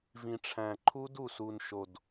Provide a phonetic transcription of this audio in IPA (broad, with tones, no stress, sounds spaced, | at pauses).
v ĩ˨˩ ʈ͡ʂʰ æ̃˨˩ ǃʰ u˦˥ d u˨˩ s u˨˩ n ʃ o˨˩ d